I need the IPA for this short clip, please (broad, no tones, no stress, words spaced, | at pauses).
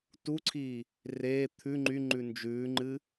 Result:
tuǀʰiː | reː t̪ʰʉ ŋ͡ǃyŋ͡ǃʉ nd͡ʒʉːŋ͡ǃɨ